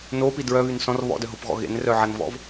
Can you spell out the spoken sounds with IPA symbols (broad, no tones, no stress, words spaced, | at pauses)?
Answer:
nopi dɹœβyn sɔ̃r βɔ̰dœɦopɣɔ̰ ɣḛnrœʕanvɔ̰v